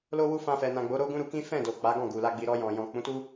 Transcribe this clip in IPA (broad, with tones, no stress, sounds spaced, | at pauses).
l o˧ w u˧ f ã˧ f ɛ˨ n ã˨ ɡ͡b o˨˦ ɾ o˦ ɡ ũ˦ ɾ u˧ k ĩ˦ f ɛ̃˦˨ d o˨ k͡p a˨˦ ɡ ɔ̃˦˨ ɡ u˨ l a˧ ɡ͡b i˨ ɾ ɔ˧ j ɔ̃˨ j ɔ̃˨ k͡p ũ˨˦ t u˦